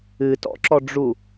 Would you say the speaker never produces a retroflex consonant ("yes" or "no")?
no